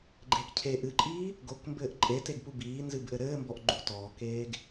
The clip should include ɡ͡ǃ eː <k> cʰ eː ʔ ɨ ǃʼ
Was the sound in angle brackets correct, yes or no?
yes